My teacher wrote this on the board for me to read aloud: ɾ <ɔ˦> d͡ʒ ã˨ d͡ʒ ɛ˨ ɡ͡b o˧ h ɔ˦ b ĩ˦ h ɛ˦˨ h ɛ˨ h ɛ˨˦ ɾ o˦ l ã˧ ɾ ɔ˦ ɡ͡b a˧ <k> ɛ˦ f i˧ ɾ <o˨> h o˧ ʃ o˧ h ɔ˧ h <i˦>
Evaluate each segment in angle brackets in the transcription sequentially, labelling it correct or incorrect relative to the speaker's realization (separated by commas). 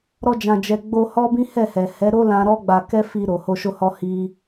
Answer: incorrect, correct, correct, correct